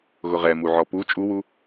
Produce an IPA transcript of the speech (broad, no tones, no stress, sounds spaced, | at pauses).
ɣ ʊ ʁ ɛ m u ʕ ɔ p u t͡ʃʼ u w u